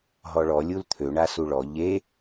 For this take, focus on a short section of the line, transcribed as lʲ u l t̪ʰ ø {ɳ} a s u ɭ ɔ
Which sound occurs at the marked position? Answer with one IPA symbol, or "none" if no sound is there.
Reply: ɳ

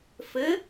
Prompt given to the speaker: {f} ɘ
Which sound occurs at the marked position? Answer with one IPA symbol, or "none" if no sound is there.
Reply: f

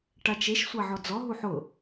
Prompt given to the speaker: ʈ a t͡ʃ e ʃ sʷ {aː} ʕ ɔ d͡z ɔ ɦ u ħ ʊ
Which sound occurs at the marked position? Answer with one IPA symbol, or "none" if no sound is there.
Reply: a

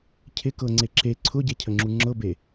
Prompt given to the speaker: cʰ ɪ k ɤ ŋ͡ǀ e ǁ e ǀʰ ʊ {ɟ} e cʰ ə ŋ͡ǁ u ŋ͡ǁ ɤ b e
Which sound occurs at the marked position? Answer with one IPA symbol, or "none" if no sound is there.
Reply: ɟ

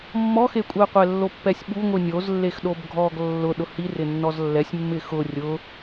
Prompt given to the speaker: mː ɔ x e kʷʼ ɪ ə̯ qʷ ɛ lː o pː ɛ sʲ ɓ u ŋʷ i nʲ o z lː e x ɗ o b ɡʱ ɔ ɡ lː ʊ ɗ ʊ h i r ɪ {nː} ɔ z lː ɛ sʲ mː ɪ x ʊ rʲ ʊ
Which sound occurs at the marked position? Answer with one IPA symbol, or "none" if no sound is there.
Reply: nː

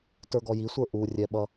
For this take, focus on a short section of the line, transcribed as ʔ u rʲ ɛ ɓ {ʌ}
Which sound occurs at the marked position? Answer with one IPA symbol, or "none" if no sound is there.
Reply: ʌ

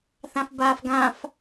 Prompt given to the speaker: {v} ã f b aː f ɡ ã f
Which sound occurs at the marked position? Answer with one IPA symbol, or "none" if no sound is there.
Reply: θ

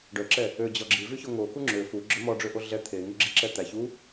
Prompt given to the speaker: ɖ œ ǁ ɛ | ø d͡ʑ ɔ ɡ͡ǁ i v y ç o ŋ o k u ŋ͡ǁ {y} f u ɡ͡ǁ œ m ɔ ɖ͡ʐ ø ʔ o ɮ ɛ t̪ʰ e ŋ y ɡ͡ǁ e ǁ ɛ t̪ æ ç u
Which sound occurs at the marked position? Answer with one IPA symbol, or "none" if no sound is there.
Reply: ø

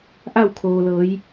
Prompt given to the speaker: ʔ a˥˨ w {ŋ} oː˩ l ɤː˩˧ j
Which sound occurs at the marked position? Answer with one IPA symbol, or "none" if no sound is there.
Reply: kʰ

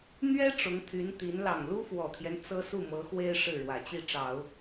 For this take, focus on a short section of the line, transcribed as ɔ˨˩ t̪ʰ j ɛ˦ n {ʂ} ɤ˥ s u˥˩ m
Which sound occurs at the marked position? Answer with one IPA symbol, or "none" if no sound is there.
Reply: t͡s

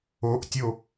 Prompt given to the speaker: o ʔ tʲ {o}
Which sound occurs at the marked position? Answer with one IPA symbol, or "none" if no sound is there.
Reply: o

